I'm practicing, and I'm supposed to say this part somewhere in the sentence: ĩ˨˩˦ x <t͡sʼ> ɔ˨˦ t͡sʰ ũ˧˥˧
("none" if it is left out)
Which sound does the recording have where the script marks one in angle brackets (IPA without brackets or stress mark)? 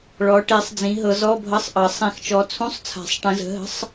t͡ʃ